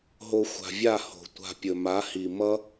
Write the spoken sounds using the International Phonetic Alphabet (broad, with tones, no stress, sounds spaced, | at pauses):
ɦ o˧ xʷ a̤˨ vʲ a˦˨ h o̤˨ tʷ a̤˧ pʲ ɵ˨ m a˨˦ h i˨ m ʌ˦